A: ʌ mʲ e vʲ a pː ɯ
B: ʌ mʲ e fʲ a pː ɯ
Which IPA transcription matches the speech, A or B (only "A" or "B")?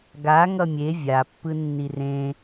A